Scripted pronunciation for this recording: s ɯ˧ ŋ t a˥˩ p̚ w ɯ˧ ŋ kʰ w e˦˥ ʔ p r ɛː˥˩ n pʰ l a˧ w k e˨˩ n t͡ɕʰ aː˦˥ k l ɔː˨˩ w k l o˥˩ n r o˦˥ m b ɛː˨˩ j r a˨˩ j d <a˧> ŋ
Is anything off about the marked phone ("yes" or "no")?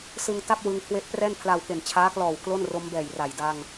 no